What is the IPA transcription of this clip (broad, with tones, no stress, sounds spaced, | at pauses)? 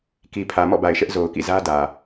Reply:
k i˨ pʰ ä˨ m ɔ̰˦˨ b a˨ ɪ̯ ʃ ɛ˦ ʔ z o˨ ʊ̯ k ḭ˦˨ z ä˦ d ä˨